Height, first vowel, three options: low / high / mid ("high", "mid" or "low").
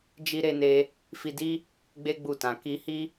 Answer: high